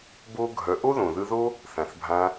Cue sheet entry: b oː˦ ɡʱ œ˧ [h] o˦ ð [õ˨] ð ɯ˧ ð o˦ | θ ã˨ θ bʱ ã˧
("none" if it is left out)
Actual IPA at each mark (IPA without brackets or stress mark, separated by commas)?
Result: ʔ, õ˨